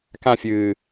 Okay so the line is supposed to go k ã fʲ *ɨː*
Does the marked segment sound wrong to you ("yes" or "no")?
no